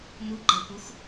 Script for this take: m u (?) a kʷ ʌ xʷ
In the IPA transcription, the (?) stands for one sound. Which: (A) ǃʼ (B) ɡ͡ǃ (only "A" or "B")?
B